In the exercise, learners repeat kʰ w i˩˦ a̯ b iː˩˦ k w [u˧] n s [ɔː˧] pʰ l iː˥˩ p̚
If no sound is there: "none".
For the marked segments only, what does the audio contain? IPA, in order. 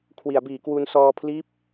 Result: u˧, ɔː˧

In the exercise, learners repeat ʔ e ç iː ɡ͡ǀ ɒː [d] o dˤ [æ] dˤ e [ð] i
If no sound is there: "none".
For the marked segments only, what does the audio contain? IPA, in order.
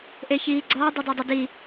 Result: dˤ, æ, d

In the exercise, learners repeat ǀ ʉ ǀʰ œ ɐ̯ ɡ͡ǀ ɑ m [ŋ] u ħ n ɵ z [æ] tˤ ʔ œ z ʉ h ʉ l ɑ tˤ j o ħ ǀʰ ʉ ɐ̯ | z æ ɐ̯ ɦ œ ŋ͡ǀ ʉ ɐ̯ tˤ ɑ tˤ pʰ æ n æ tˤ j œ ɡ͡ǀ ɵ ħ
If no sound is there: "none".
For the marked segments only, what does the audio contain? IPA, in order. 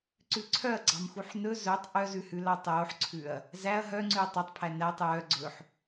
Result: x, œ

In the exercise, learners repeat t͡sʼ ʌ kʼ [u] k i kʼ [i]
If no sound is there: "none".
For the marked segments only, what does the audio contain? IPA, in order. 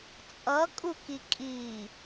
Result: u, i

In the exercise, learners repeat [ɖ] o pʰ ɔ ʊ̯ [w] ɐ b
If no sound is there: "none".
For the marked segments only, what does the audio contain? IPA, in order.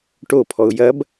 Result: ʈ, j

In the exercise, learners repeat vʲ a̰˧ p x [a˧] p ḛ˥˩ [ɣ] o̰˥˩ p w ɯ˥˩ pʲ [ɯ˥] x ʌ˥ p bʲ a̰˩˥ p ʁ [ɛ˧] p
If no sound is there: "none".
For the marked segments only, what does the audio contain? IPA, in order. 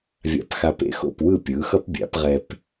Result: a˧, x, ɯ˩˥, ɛ˧

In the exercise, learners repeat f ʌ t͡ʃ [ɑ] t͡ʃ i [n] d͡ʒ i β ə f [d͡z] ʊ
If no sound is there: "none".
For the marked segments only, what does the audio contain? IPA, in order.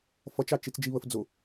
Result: ɑ, t͡s, d͡z

